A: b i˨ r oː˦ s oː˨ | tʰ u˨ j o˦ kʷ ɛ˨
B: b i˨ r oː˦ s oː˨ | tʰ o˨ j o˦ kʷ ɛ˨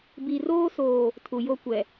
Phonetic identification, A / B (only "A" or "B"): A